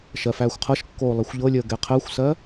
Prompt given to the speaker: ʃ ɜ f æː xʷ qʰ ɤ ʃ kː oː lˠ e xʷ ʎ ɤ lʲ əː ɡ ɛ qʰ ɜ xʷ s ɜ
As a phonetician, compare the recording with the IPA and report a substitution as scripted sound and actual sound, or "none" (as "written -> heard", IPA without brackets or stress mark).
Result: none